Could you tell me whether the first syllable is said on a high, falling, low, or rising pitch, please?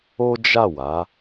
high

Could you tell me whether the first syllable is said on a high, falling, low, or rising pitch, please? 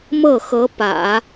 falling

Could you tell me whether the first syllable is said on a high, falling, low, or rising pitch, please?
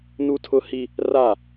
high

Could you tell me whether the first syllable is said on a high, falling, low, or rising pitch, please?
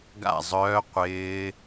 falling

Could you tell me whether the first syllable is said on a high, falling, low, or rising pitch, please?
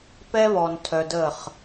high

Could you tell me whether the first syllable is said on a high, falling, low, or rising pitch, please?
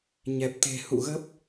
low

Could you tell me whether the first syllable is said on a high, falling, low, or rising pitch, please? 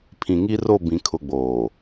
low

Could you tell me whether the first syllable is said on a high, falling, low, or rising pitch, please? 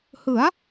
rising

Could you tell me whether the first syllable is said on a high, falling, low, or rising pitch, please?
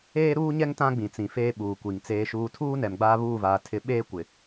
high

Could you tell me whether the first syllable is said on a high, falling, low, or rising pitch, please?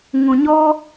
low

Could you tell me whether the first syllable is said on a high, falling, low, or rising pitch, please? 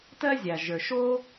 high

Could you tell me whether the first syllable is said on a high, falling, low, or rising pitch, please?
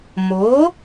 rising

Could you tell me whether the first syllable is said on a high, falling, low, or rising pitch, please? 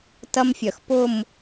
high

